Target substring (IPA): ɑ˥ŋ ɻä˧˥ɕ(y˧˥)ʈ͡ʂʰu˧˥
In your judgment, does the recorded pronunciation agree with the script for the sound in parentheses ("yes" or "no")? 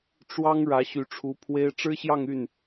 yes